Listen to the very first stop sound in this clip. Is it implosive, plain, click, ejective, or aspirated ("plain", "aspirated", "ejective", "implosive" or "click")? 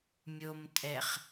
ejective